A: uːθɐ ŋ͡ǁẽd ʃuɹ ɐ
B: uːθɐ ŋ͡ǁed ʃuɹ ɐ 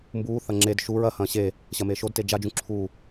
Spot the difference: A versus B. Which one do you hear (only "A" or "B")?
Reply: B